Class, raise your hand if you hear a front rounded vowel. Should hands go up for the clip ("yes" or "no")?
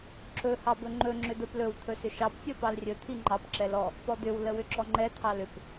yes